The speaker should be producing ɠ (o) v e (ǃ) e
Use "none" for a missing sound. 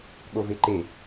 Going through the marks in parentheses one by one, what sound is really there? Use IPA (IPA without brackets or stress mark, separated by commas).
o, ǃ